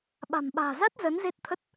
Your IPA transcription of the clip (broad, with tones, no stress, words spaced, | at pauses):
ɓa̤˨˩mɓa̤ː˨˩ za˦˥t̚ zə˨˦nze˦˥t̚t̪ʰə˦˥t̚